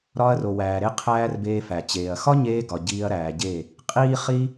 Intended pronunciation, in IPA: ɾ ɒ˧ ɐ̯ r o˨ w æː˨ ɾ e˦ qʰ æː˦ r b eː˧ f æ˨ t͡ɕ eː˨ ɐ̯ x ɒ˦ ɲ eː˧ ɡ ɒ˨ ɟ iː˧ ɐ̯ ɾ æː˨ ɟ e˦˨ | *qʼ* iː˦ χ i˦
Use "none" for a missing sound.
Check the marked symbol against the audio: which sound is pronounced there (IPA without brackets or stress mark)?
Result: qʼ